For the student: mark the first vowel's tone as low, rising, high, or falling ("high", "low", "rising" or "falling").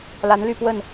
rising